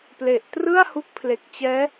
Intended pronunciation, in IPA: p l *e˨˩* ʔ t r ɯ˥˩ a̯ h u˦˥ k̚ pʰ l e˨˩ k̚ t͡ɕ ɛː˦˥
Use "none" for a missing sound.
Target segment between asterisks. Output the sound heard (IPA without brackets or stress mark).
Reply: e˨˩